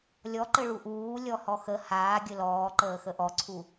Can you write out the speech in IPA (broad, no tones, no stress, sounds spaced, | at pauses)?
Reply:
lʲ ɔ ǃ ɘ ɭ u ʔ uː lʲ ɔ h ɔ x ə h aː ɡʲ ɘ l ɔː ǃ əː x ə ʔ ɔ ǀʰ u